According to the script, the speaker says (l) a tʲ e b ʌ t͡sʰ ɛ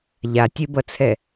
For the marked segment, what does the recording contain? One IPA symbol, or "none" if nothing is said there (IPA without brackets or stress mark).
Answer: ʎ